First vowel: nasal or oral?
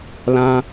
nasal